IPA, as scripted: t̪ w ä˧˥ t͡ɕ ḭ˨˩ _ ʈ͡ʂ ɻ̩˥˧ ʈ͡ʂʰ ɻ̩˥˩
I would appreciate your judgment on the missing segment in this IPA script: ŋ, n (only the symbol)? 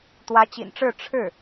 n